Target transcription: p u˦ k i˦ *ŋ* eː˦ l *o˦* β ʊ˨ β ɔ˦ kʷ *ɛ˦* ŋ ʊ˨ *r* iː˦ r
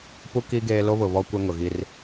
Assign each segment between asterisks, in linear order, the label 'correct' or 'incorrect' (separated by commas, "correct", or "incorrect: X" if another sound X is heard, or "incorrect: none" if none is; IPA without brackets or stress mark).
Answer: incorrect: ɡ, correct, correct, incorrect: ɣ